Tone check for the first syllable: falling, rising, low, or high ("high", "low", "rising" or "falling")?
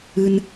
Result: high